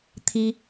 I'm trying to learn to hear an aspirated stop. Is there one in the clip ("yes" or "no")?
yes